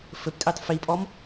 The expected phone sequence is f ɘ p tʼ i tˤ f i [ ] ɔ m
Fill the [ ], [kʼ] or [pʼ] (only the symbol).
pʼ